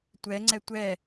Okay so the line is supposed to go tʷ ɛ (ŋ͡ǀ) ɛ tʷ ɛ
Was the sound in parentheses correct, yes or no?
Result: yes